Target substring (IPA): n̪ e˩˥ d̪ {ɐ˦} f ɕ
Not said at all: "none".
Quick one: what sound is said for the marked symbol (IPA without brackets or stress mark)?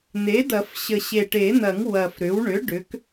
ɐ˨˩˦